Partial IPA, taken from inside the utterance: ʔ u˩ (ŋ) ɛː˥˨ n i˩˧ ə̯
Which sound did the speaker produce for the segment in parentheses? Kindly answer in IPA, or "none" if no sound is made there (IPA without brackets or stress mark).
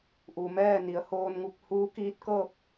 m